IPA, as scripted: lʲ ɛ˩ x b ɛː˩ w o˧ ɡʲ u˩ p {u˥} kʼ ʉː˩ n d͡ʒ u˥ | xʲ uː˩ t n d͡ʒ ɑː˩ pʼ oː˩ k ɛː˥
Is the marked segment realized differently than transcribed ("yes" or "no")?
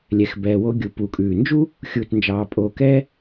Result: yes